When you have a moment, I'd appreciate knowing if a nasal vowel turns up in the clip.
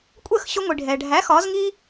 no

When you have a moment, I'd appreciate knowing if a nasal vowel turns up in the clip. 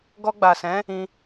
yes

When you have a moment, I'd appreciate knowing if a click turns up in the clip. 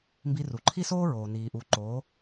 yes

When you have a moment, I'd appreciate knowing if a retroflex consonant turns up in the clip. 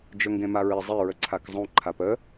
no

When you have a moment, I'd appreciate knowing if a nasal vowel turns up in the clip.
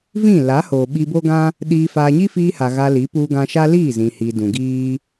yes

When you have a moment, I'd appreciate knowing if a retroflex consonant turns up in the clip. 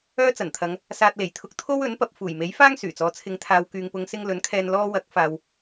no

